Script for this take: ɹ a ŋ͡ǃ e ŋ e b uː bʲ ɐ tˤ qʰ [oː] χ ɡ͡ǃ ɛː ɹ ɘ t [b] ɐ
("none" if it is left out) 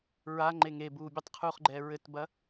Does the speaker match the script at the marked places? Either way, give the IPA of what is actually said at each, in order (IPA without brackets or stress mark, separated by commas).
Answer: uː, b